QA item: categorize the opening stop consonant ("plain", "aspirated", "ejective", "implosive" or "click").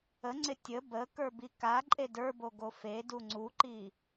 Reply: click